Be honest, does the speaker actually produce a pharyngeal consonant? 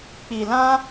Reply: no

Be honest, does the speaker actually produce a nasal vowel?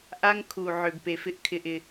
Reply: no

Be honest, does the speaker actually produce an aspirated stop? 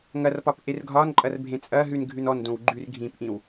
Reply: no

